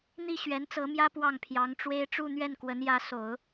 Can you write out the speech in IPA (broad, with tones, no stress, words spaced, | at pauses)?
n̪i˥˩ ɕɥɛ˧˥nt͡sɤ˧˥mjä˥ pwɑ˥˩ŋpʰjɑ˧˥ŋʈ͡ʂwe˥ɪ̯ ʈ͡ʂu˥˧n̪ɥɛ˥˩n kwə˧˥njä˧˥ so˨˩˦ʊ̯